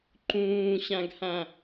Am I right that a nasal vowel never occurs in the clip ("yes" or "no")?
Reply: no